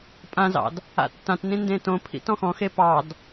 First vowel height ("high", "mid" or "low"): low